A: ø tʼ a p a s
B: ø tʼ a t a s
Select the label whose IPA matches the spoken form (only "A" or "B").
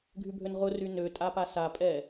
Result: A